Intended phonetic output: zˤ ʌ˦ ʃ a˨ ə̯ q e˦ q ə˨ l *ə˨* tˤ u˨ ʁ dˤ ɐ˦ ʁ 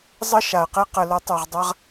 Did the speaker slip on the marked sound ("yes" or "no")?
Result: yes